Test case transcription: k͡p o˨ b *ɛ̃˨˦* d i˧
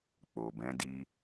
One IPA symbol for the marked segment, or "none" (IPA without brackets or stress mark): ɛ̃˨˦